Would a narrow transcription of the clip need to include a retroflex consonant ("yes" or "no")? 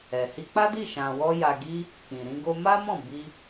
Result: no